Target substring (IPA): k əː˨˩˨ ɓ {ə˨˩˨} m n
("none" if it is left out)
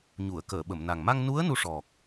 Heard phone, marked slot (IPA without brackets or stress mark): ə˨˩˨